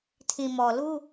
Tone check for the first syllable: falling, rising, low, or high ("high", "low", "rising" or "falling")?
low